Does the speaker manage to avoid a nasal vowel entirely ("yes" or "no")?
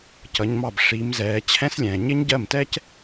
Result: no